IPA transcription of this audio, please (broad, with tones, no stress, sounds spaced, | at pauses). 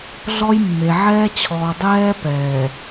ɮ ɔ˦ j mː e˨ ʕ ɛː˦ t͡ɕʰ ɔː˨ dˤ ɛː˦ p ɛː˨